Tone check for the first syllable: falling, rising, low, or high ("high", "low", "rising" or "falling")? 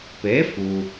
rising